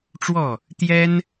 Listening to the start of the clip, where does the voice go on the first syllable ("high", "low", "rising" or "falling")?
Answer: falling